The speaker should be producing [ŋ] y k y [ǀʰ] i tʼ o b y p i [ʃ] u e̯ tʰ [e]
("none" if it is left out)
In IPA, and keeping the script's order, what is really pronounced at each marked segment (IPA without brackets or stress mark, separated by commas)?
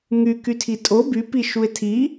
ŋ, tʰ, ʃ, i